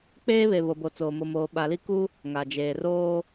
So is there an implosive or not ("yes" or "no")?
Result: yes